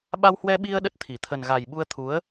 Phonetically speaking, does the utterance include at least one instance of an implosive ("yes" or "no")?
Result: yes